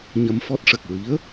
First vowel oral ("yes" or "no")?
yes